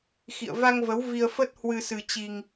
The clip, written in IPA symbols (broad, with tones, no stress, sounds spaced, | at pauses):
x ḭ˧˨ ə̯ v a˧ ŋ v ə˨˦ w v i˧ ə̯ f ə˦˥ t̚ h w ɨ˧ s ɨ˧ t͡ɕ i˧ ŋ